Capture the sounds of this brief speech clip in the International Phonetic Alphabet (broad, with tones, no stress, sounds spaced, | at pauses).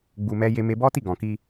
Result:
ɡ͡b u˧ m ɛ˦ j e˦ m e˦ b ɔ˦ t i˦˨ ɡ ɔ̃˨ k i˧